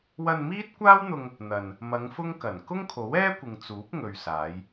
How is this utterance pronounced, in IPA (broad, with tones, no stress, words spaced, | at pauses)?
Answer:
wɐ˧nmiː˥t̚kʷaː˥wn̪ʊ˧ŋ | n̪ɐ˨n | mɐ˨˧ŋ fʊ˥ŋkɐ˨˩n kʊ˥ŋkʰo˨˥wɛː˥kʷɪ˨ŋ t͡suː˨˥p̚ŋɵ˨ɥsaː˨˧j